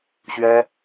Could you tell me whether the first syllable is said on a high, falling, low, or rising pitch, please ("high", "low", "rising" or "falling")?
high